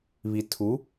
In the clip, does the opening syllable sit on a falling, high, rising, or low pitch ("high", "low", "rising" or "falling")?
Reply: low